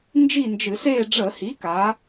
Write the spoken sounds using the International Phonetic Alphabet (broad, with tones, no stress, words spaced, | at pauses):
nd͡ʒi˥˨nd͡ʒɨ˧˩˧seː˥˨ ɖ͡ʐə˧˩˧hi˩˥ka˩˧